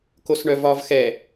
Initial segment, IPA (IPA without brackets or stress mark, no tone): k